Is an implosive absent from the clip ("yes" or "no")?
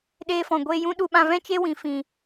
no